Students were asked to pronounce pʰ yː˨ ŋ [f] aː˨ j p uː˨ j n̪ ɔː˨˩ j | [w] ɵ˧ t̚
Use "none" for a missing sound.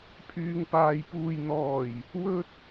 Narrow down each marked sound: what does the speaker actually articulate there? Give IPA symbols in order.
p, w

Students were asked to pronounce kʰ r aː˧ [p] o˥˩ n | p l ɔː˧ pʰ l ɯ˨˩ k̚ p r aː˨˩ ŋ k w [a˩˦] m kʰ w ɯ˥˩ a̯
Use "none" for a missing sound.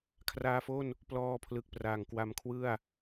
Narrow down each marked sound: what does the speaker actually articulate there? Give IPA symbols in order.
f, a˧

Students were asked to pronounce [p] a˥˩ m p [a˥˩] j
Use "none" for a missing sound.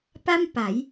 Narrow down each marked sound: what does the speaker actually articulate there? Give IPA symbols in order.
p, a˩˦

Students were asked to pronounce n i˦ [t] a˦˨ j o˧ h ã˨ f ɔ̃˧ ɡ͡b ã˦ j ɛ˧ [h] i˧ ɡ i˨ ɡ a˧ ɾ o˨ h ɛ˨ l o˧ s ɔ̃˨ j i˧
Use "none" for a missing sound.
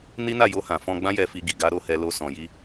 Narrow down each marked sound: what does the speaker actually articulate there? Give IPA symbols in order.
n, f

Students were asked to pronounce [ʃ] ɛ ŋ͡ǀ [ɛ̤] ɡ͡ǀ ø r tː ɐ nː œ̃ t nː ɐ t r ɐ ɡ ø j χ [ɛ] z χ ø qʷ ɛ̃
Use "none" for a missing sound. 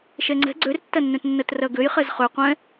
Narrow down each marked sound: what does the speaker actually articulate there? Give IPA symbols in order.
ʃ, ɛ̤, ɛ

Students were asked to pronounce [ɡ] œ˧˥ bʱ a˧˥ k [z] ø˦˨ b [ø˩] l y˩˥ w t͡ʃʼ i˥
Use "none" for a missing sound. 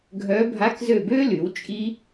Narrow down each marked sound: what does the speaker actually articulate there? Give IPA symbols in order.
ɡʱ, z, ø˥

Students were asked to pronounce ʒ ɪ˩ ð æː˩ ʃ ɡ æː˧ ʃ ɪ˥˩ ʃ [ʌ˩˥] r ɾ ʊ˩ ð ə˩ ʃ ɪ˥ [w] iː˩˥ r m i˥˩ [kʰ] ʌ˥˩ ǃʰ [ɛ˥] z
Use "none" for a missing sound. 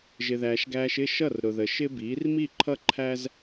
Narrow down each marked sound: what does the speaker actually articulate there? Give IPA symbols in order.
ʌ˥˩, b, ǃʰ, æ˥

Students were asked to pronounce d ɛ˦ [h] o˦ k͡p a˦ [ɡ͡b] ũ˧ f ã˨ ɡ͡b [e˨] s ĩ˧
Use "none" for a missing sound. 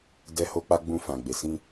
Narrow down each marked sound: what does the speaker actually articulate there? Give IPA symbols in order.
h, ɡ͡b, e˨

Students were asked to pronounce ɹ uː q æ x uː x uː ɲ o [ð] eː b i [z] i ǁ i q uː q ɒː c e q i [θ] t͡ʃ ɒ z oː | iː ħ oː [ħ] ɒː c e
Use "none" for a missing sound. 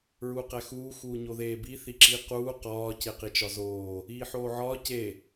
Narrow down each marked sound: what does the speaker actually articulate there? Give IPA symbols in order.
ð, θ, none, ʕ

